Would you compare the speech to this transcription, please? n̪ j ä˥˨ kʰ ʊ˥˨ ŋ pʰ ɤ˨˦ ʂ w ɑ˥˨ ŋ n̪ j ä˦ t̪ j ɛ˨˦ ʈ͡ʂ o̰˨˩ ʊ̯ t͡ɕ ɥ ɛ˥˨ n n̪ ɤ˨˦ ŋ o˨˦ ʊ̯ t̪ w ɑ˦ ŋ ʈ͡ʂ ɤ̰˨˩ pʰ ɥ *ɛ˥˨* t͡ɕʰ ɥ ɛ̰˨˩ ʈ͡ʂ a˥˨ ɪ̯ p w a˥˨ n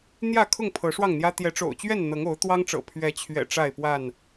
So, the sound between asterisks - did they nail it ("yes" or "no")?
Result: no